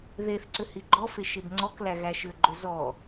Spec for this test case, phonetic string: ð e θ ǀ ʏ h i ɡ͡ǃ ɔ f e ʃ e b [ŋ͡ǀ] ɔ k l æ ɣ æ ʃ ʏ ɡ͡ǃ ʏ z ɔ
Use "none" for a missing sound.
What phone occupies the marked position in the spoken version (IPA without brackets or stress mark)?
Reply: ŋ͡ǀ